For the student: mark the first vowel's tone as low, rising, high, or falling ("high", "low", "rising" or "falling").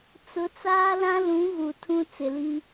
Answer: rising